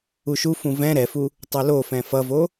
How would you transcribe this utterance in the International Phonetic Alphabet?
u ʃ u f ũ v ɛ̃ ɾ ɛ f u | tˤ u l o f ɛ̃ f ʌ v o

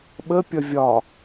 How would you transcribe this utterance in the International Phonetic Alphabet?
ɓ ə pʲ ʌ vʲ ɒ

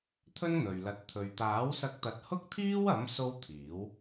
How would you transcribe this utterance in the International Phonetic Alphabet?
t̪ʰ ɵ˥ n n̪ ɵ˨ ɥ l ɐ˧ t̚ t̪ʰ ɵ˨ ɥ t̪ aː˨˥ w s ɐ˧ k̚ t̪ ɐ˨˥ t̚ h ʊ˥ k̚ t̪ʰ iː˥ w ɐ˨˥ m s o˥ w t̪ʰ iː˨˥ w

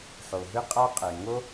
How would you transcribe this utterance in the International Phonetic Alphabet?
ħ o˨ ɦ ɯ˦ qʼ a˦ qʼ ɛ˨ ŋ o˦

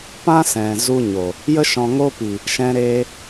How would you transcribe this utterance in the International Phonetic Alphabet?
p ã˦ s ɛ̃˨ z u˧ ɲ o˨ | j ə˧ ʃ ɔ̃˨ ŋ o˧ p i˨ | ʃ ɛ̃˧ ɾ eː˧

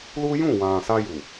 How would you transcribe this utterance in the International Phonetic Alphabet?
l u˦ j ũ˦˨ w ã˨ s a˧ j u˨

